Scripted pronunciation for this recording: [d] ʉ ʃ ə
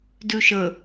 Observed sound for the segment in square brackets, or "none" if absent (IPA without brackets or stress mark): d